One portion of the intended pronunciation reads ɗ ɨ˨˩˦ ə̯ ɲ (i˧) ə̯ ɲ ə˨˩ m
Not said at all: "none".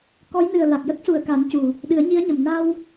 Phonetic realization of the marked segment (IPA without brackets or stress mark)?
i˧˥